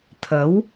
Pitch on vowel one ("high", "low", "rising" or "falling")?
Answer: rising